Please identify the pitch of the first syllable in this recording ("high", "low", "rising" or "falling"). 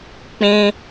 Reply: high